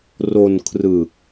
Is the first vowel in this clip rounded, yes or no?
yes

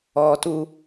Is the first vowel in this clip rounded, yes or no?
yes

